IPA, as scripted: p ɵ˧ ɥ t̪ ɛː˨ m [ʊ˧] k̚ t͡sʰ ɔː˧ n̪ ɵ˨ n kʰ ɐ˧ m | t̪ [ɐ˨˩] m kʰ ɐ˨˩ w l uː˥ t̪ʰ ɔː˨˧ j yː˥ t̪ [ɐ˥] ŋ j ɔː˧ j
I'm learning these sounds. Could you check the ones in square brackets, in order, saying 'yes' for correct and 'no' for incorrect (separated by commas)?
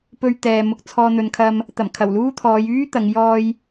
yes, yes, no